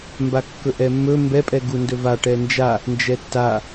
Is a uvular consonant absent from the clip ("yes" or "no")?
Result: yes